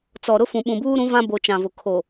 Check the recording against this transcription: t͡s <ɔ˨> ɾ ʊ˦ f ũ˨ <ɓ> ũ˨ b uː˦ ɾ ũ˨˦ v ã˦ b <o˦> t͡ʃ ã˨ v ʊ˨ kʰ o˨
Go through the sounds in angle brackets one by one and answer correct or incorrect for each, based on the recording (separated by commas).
correct, correct, incorrect